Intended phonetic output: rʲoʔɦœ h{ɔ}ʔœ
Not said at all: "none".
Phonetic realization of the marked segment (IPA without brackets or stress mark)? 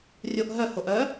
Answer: o